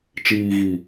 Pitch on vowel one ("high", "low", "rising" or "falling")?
low